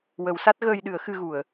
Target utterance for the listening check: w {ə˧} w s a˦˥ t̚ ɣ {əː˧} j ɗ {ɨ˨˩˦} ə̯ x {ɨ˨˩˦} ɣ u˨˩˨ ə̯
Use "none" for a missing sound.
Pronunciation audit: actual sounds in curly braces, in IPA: ə˨˩˦, əː˧, ɨ˨˩˦, ɨ˧

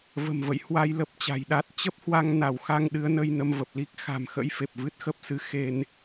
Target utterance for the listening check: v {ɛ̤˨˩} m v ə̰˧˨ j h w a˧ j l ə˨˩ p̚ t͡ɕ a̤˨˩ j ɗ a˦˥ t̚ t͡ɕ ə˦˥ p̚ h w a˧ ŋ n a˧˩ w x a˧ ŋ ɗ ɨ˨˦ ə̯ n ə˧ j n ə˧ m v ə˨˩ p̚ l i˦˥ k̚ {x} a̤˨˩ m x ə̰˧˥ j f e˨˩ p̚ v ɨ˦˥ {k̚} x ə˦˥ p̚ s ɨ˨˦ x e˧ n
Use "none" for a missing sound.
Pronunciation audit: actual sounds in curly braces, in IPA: ə̤˨˩, x, t̚

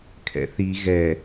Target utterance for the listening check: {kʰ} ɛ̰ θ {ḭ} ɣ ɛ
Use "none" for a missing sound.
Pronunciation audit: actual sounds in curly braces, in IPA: kʰ, i

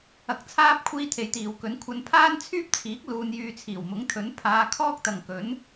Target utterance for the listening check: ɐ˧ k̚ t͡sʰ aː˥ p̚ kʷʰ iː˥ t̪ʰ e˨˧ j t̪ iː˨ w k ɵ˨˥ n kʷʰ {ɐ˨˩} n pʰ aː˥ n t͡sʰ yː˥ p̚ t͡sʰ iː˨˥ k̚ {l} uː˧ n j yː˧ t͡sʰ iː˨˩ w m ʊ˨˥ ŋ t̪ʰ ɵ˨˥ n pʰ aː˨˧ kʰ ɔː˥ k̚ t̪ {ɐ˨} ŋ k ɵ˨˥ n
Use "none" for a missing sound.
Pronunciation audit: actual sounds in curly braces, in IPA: ɐ˧, l, ɐ˨

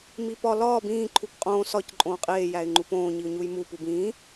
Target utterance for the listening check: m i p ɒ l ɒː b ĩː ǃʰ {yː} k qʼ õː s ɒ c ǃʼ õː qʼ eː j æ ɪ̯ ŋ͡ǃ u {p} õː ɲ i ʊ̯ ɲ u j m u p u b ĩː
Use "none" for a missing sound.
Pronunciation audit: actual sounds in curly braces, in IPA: uː, p

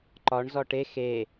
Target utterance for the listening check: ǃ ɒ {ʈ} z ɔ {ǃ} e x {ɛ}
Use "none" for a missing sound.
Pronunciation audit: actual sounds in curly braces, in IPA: ɳ, ʈ, e

